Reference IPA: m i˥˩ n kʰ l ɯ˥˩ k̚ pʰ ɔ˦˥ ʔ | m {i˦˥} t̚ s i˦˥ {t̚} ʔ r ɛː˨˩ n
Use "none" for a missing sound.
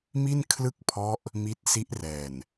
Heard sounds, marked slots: i˦˥, none

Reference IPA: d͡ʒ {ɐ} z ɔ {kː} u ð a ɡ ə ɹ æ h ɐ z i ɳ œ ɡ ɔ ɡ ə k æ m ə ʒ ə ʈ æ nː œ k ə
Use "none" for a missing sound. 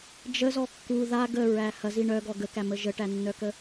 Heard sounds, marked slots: ə, kː

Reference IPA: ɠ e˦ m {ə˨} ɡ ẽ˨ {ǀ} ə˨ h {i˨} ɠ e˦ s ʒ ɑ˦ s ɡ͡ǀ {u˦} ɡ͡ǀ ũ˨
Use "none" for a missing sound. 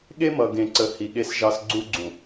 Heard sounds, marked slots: ʌ˨, ǀ, i˨, u˦

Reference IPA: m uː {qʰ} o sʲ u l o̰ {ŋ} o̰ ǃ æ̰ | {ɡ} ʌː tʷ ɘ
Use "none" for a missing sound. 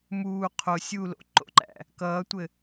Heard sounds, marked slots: qʰ, ǃ, k

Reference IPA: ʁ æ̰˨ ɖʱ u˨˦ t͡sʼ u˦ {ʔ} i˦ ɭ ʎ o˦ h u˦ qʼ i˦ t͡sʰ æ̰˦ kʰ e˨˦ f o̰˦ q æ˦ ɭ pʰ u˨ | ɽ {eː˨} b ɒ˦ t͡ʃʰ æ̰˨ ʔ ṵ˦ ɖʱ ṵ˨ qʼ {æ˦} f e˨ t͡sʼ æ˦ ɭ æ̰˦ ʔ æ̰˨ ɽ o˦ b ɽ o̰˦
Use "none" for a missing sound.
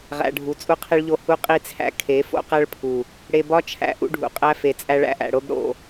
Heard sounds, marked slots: qʰ, e˨, æ˦

